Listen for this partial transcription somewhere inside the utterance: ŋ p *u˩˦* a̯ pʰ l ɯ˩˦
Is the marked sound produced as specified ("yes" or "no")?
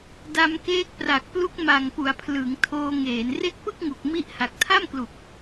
yes